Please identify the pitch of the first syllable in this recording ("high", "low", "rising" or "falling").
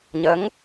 rising